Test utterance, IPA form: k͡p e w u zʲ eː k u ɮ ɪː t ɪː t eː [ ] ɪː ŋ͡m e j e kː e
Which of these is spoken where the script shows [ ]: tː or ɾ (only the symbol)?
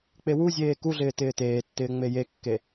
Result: tː